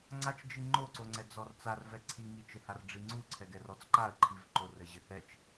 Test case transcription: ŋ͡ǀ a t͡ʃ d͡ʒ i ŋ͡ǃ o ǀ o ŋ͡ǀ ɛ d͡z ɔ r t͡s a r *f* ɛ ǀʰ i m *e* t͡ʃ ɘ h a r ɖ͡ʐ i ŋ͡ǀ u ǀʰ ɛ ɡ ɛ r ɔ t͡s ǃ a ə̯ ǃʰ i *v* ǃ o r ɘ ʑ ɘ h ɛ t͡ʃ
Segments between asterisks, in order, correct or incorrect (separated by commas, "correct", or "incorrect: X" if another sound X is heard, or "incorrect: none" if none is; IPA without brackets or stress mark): incorrect: v, incorrect: i, correct